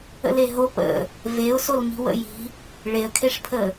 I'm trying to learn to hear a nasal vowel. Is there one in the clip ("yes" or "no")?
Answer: no